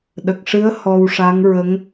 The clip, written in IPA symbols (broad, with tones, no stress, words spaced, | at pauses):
ɗə˨˩k̚ʂɨ˧˥ə̯ hɔ˧wʂa˧˥ŋɹə˧˥ŋ